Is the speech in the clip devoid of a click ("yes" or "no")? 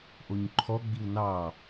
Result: no